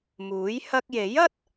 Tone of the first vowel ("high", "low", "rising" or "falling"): rising